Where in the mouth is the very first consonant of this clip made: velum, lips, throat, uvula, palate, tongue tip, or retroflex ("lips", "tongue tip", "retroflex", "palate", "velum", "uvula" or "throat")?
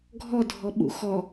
velum